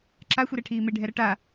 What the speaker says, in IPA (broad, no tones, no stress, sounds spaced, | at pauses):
ǁ a xʷ i ɾ ɛ ʈʰ iː m e ɖʱ ɛ ɾ ʌ ʈ a